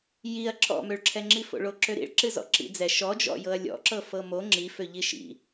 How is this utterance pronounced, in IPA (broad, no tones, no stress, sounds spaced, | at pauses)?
j i ɐ̯ ǁʰ ɔ̰ m ø ɭ ǁʰ ɛ ŋ͡ǁ i f o̰ ɭ o ǁ ø ɾ ḭ ɭ ǁ ɨ z ɔ̰ ǁ ḭ d͡z ɛ ʃ ɔ d͡ʒ ɔ̰ j ɤ ɐ̯ lʲ ɔ̰ ǁ ɤ f ɤ m o ŋ͡ǁ i f ø ʎ i ʃ ḭ